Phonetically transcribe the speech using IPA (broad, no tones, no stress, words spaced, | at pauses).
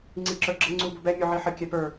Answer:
ŋ͡ǀiǁə˞ɡ͡ǁə ŋ͡ǀubʊbɛ mʲuʕiħə kʲɛpə˞